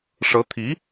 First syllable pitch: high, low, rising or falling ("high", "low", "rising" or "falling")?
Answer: rising